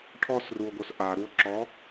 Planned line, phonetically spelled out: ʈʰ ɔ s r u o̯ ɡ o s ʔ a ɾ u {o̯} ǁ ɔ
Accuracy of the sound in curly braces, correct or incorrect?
correct